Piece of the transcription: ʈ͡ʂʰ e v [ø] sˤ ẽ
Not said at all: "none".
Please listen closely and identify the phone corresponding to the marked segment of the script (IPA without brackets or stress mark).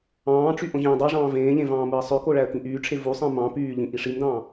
u